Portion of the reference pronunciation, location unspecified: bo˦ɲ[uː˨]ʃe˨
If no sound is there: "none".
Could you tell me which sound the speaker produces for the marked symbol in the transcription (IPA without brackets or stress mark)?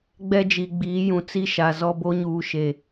uː˨